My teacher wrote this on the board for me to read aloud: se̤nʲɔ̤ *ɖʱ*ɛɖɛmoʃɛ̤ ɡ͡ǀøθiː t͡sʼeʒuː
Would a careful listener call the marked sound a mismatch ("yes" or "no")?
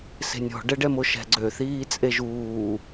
yes